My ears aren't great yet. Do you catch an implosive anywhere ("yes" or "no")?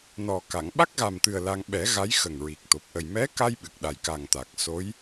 yes